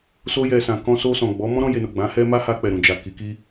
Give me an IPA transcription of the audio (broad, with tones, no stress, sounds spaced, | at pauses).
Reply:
s o˧ j ɛ˨ s ã˨ k ɔ̃˧ s o˧ s ɔ̃˨ ɡ͡b ɔ˨˦ m ɔ̃˦ ɾ ɔ̃˧ j e˨ n o˨ ɡ͡b ã˨˦ h ɛ˦ m a˦ h a˧ k͡p ɛ˨ ɾ ũ˨ d͡ʒ a˨ k i˨˦ k i˦